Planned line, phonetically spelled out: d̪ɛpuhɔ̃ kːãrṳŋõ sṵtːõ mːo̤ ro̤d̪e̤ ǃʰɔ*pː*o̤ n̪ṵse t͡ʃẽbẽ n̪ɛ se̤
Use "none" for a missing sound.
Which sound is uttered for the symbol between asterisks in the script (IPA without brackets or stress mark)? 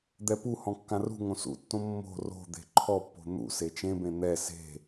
pː